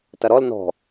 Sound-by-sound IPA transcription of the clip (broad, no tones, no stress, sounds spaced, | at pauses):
t ɐ ɾ ɔ l n ɔ̤